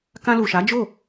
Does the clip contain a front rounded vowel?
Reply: no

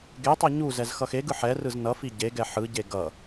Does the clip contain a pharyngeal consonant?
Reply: yes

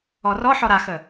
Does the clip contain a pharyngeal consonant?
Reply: yes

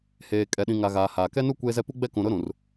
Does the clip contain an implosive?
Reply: yes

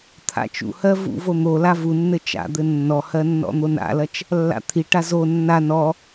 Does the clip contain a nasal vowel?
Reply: no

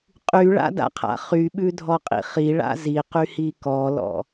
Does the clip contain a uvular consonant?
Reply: yes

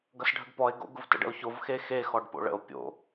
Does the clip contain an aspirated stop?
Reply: no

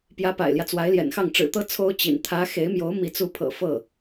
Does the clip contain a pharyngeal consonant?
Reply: no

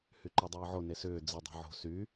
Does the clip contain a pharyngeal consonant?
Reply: yes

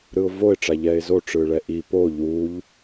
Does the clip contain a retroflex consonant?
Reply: yes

